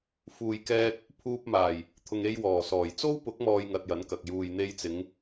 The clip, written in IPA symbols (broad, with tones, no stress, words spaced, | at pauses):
fuː˨j kɛː˧t̚ | pʰuː˧p̚maː˨˩j | t̪ʰʊ˨ŋe˧jwɔː˨˩sɔː˨˩j t͡so˥w pʊ˨˥k̚mɔː˨j ŋɐ˧t̚jɐ˨˥nkɐ˨k̚ juː˨jn̪e˧jt͡sɪ˨˧ŋ